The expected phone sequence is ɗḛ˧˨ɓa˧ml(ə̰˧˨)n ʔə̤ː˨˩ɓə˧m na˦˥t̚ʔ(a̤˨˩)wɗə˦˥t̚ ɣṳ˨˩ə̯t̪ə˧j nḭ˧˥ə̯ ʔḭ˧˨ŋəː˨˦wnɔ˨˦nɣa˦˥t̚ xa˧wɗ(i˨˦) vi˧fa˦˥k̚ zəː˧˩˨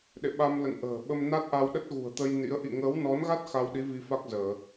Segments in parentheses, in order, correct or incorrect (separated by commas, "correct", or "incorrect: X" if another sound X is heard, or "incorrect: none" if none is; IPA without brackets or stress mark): correct, incorrect: a˧, correct